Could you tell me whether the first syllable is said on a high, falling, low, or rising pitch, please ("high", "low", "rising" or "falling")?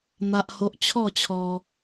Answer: high